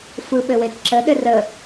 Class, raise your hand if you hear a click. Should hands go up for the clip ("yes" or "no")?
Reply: yes